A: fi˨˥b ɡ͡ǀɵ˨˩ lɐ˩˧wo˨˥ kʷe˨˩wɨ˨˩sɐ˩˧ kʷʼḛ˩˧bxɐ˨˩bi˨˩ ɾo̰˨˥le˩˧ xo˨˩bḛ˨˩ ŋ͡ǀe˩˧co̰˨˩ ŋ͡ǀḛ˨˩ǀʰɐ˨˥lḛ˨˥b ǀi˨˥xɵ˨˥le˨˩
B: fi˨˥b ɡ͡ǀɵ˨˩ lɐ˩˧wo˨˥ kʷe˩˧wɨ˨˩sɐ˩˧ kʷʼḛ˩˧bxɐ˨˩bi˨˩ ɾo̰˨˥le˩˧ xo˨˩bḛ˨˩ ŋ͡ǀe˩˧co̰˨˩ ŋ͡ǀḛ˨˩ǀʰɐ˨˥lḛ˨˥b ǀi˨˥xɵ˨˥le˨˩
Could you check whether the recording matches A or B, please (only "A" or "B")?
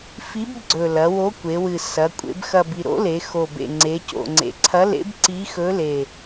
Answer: B